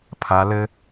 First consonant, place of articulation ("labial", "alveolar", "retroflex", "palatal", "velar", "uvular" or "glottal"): labial